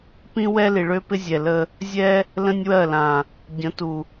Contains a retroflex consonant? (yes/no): yes